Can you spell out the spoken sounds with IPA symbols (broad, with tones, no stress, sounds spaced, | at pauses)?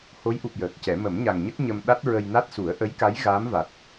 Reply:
h o˧˥ j ʔ u˨˩ p̚ j əː˨˩ k̚ c ɛ˨˩˦ m ə˨˩˦ m ɲ a˨˩ ŋ ɲ ə˦˥ k̚ ɲ ə˧ m ɗ a˦˥ t̚ ɹ ə˧ j n a˦˥ t̚ s u˨˩˦ ə̯ ʔ ə˧˥ j k a˧˥ j ɣ a˧˥ m v a˨˩ t̚